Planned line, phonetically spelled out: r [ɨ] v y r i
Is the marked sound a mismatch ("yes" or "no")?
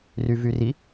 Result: yes